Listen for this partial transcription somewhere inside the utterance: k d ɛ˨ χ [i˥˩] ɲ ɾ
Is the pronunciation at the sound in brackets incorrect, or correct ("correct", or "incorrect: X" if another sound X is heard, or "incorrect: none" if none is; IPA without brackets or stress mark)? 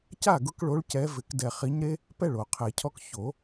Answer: incorrect: i˨˦